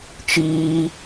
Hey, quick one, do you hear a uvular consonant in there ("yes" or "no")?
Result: no